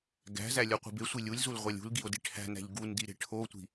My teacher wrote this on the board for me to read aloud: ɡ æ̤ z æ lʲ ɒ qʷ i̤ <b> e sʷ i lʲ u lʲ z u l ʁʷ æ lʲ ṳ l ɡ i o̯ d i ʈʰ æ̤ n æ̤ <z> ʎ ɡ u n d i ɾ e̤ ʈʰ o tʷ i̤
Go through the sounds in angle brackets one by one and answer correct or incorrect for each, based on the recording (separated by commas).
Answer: correct, incorrect